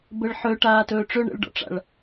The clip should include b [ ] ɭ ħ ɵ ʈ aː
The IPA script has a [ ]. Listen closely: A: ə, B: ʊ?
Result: A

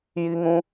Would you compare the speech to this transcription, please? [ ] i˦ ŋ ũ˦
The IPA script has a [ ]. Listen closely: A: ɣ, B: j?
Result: B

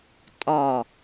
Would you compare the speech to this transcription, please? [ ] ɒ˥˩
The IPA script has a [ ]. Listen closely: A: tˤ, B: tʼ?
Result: B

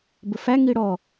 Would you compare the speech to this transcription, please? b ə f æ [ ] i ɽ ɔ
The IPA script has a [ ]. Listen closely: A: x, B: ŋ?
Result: B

